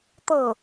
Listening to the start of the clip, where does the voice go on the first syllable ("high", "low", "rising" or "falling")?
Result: falling